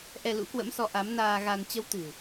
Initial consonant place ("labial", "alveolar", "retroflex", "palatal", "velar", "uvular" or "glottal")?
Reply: glottal